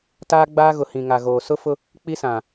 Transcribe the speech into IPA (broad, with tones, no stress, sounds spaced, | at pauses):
t aː˦ ɡ͡b aː˦ ɣ ʊ˨ h ĩ˨ ŋ a˨ ɣ oː˨ s ʊ˦ f ʊ˦ | k͡p i˦ s ã˨